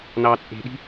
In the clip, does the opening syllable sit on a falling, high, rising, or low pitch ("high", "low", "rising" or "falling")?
low